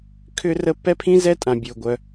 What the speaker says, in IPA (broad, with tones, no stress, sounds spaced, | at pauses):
kʰ ʏ˥ r ə˥ p ɛ˥ pʰ ĩ˥ z ɛ˥ tʼ ã˩ bʲ ʊː˩ ɡʷ œ˩